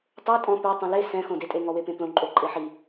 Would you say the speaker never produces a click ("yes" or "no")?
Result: no